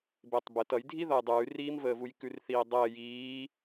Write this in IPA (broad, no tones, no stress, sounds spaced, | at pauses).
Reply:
b e tˤ b ə t ʌ j dʱ i ð ʌ j dˤ ʉː r iː m v əː v u j k ʉ r θ iː dˤ əː j iː